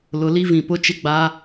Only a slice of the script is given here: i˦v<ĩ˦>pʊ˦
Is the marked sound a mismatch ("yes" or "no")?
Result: yes